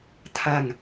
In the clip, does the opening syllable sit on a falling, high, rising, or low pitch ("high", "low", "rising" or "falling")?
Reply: falling